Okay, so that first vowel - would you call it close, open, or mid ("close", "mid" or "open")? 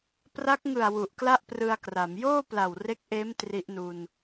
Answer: open